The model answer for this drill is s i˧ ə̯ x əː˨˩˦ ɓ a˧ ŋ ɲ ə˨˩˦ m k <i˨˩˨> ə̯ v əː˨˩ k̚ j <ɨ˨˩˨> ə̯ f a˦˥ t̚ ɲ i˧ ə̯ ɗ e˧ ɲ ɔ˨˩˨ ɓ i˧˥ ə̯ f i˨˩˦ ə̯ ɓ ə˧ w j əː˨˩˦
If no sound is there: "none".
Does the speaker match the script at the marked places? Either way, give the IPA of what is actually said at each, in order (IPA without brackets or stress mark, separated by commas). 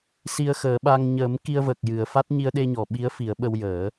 i˧, ɨ˨˩˨